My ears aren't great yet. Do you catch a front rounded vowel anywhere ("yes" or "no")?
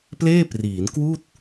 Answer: no